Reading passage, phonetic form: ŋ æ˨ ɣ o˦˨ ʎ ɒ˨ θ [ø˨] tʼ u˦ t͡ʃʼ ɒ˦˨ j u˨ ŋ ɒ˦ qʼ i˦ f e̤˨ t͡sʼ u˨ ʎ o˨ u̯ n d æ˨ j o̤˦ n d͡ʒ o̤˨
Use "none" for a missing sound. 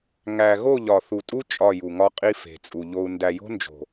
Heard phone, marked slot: u˨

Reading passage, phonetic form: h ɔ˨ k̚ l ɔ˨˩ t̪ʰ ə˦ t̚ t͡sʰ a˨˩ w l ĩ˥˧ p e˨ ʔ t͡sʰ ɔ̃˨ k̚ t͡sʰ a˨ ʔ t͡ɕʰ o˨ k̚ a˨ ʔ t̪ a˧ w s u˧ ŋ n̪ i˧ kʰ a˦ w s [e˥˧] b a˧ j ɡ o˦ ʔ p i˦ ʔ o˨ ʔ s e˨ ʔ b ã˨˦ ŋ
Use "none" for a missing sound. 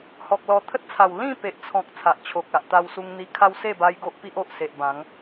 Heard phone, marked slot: e˥˧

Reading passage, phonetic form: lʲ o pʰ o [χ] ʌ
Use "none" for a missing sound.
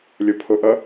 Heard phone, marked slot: ʔ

